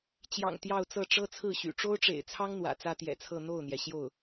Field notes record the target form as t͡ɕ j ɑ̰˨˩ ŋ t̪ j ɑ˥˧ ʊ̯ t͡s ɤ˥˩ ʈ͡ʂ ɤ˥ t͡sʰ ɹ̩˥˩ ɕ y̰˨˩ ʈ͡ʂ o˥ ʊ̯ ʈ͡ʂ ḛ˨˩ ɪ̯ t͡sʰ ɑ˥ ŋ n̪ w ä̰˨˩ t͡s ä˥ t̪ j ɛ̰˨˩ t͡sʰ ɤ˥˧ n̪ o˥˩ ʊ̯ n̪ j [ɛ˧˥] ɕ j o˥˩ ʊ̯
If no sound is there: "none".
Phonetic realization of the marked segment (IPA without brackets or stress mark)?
ɛ˩